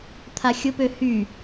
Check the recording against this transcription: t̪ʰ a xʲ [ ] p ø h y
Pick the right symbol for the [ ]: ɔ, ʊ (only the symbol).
ʊ